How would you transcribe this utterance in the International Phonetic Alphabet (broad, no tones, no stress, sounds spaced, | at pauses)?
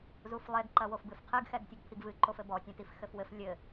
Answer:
z u f lˠ e ɡ ǃ ɐ w o f b ɨ f qʰ ɨ ɡ x ɛ ɡ tʲ ɐ ɡ pʰ i ɡ v ɨ ǃ o f ɘ b ɔ tʲ ã t i f x ɘ f w ɘ f lʲ ɘ